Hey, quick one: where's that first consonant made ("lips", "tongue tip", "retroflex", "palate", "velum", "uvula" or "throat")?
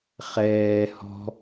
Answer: uvula